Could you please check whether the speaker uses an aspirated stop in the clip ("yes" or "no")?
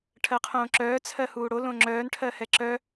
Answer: yes